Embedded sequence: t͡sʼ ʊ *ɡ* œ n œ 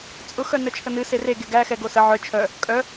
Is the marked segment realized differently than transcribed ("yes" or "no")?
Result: yes